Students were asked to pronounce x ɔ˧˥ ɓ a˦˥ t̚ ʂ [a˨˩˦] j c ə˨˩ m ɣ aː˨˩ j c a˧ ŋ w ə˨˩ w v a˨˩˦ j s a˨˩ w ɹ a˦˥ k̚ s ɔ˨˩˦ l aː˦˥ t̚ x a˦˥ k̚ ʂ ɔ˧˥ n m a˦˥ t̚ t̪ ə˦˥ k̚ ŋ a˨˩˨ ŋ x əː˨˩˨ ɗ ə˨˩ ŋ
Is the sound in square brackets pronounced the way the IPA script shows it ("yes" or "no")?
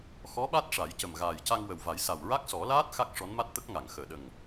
yes